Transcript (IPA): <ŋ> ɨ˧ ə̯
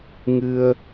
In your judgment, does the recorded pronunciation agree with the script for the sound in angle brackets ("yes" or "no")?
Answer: yes